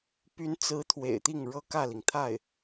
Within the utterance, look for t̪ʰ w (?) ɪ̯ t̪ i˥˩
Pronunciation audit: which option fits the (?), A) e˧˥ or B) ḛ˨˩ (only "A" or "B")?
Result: B